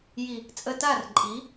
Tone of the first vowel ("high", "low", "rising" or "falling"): low